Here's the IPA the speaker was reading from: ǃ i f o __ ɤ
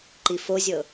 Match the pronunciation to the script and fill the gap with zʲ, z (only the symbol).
zʲ